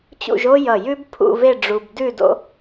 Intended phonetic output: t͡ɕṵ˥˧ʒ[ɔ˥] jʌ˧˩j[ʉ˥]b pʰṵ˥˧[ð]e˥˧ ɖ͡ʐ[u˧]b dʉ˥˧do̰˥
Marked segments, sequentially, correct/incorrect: incorrect: o˥, correct, incorrect: v, correct

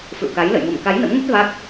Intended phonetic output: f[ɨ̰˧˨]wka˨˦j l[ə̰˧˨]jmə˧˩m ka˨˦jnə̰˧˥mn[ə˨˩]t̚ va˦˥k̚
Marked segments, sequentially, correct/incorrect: correct, correct, incorrect: ə˦˥

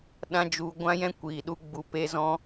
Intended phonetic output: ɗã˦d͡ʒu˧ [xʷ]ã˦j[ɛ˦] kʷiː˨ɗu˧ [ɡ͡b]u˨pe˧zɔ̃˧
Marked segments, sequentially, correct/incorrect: incorrect: ɡʷ, incorrect: ɛ̃˦, correct

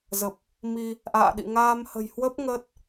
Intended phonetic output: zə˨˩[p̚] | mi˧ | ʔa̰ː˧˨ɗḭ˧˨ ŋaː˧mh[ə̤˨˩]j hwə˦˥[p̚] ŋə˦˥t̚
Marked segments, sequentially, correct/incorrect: correct, correct, correct

